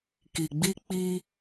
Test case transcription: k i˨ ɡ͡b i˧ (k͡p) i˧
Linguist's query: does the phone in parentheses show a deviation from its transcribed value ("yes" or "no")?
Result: no